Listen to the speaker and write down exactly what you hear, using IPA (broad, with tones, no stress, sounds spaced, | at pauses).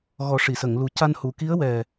ɣ ɔ˨˩˦ ʂ i˨˩˨ s ə˨˩˨ ŋ l u˨˩ c a˧ n h u˨˩˨ k i˧˥ ə̯ w ɛ˨˩